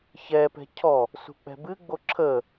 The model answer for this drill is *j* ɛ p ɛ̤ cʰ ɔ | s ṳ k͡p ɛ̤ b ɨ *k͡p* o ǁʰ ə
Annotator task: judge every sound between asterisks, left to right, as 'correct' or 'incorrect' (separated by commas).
incorrect, incorrect